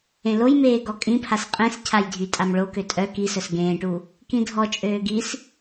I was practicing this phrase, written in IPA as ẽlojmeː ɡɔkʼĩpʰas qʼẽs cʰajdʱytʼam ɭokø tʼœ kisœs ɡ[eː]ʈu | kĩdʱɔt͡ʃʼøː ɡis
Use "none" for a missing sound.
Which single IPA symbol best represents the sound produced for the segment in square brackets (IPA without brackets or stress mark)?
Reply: ẽː